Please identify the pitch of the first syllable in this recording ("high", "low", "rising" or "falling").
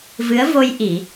rising